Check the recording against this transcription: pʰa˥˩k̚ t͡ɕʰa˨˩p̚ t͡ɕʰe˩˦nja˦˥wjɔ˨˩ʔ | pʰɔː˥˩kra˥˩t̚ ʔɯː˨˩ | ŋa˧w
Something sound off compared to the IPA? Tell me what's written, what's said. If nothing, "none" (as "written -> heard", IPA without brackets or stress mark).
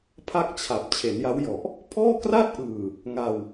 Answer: none